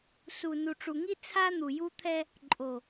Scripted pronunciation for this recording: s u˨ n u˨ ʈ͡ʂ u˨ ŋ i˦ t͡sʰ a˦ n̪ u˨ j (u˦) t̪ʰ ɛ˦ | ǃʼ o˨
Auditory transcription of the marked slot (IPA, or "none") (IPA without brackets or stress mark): u˦